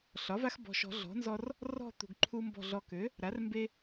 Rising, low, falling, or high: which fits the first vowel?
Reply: rising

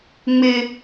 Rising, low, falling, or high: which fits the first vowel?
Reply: high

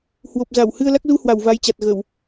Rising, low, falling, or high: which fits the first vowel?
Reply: low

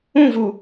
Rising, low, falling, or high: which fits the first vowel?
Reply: falling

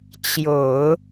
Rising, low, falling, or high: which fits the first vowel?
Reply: low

